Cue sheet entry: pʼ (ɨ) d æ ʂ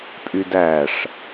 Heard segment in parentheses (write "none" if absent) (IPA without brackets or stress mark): y